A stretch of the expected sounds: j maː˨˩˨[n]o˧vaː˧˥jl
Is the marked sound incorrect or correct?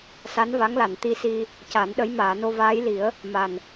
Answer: correct